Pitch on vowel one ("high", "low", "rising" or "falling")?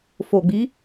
low